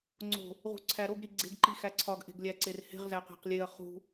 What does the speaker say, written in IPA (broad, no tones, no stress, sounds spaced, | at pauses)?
ŋ͡ǀ o̤ | ʁ ṳ ǀʰ æ ɾ o ɡ ɾ i ɡ͡ǀ e̤ ɡ ǃ i x æ ǀʰ ɒ ɡ ʔ e̤ ɡ lʲ æ ǀ e r h e̤ ʁ z æ q æ̤ q lʲ e ɐ̯ χ ṳ